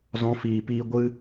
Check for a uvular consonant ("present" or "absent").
absent